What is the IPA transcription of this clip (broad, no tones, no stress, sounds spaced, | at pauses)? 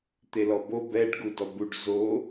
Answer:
t̪ e l ɔ b o b ɛ ɖ ɡ u d ɔ b u ɖ z o